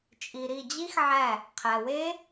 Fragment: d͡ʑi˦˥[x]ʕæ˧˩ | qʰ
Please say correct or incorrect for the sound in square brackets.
correct